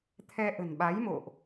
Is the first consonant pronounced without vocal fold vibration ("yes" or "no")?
yes